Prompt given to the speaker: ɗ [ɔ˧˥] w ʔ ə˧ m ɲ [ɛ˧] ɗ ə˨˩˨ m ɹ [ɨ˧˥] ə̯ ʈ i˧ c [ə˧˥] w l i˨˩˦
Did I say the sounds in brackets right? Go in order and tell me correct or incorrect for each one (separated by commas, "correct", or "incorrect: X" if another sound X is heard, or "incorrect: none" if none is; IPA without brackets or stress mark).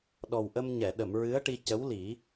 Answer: incorrect: ɔ˨˩, incorrect: ɛ˨˩˨, correct, correct